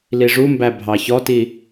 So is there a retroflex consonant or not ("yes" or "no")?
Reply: yes